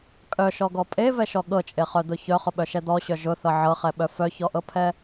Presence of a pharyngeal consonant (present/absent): present